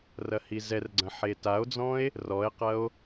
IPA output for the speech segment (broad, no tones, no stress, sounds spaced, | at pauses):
r ɐ h i z ɛ r ɡ͡ǀ ɐ̃ ħ e t a o̯ d͡z ɔ̃ e̯ | r ɔ e̯ q ɐ o̯